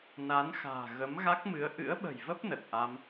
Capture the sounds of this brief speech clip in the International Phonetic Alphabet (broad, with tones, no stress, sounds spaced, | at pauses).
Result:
n a˨˦ n x a̤ː˨˩ ɣ ə˨˦ m ɣ a˦˥ k̚ m ɨ˨˦ ə̯ ʔ ɨ̰˧˥ ə̯ ɓ ə̤˨˩ j v ə˦˥ p̚ n ə˨˩ t̚ ʔ a˧ m